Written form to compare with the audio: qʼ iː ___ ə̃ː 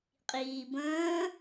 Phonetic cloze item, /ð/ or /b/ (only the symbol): b